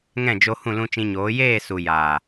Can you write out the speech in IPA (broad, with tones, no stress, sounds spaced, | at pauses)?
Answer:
ŋ ɛ̃˦˨ d͡ʒ o˧ h ũ˦˨ l ũ˧ t͡ʃ ĩ˧ ɲ oː˨˦ j eː˦˨ s u˨ j aː˨